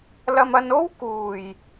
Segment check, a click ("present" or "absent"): absent